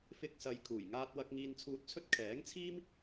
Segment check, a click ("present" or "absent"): absent